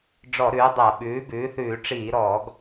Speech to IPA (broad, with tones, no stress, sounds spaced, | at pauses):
ɖ͡ʐ ɔ˧˩˧ ɾ ʉː˩˥ dˤ a˧˩˧ ɓ ʉː˩˥ b ʉː˩˥ θ ʉː˧˩˧ ʈ͡ʂ iː˧˩˧ ɾ ɔː˧˩˧ ɡ